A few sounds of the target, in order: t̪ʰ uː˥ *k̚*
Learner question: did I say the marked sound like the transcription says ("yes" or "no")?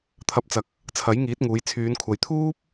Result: no